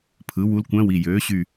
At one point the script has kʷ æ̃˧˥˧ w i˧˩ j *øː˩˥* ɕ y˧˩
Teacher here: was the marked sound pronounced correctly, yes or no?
yes